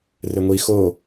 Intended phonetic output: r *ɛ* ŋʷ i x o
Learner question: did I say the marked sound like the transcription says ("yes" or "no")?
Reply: no